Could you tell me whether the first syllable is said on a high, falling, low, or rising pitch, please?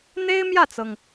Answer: high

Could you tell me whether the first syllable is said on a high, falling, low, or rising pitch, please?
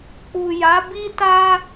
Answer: low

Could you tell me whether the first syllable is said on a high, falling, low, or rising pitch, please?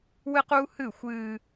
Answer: high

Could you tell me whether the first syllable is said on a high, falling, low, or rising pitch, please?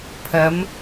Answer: rising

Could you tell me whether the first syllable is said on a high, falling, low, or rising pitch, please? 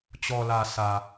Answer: low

